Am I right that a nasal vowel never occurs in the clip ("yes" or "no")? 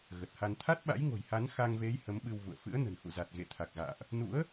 yes